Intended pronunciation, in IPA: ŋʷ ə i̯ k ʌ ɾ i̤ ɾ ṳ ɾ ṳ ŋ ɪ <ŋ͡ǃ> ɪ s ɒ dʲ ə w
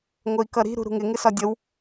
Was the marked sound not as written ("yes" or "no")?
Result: yes